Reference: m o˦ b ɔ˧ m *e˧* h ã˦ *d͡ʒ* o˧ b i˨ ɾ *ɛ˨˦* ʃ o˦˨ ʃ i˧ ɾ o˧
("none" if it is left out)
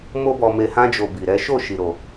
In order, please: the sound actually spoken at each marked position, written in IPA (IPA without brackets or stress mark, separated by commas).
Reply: e˧, d͡ʒ, ɛ˨˦